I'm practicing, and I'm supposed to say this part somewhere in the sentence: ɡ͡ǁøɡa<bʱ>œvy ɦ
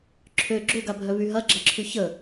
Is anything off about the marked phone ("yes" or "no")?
no